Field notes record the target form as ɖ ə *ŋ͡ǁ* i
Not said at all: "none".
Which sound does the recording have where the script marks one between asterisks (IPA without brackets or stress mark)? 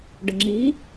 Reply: ŋ͡ǁ